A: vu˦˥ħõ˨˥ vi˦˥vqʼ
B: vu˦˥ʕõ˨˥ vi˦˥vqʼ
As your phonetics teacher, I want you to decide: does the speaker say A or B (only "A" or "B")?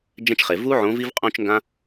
B